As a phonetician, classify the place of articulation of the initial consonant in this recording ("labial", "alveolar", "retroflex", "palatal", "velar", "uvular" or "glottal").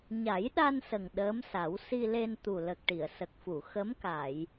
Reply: palatal